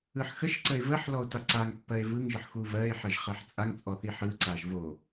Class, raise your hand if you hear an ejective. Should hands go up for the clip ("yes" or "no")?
yes